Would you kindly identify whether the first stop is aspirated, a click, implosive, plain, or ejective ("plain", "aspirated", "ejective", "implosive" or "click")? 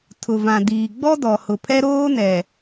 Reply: aspirated